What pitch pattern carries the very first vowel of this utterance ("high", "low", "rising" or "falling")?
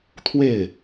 falling